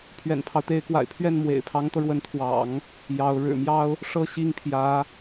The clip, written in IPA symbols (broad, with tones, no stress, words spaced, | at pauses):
pʰɥɛ̰˨˩npʰɑ˦ʊ̯t̪e˧˥ɪ̯kwa̰˨˩ɪ̯ pʰɥɛ˥˩nmwḛ˨˩ɪ̯pʰɑ˧˥ŋt̪ɤ˧ ɻwə˧˥nt̪ʰwɑ̰˨˩˦ŋ | jɑ˧˥ʊ̯ ɻɻ̩˨˩mjɑ˥ʊ̯ | ʂɤ˥˧ɕi˥˩ŋ pʰjä˧˥